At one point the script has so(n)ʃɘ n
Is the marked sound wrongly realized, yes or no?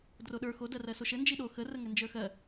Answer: yes